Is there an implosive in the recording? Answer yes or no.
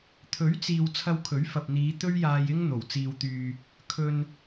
no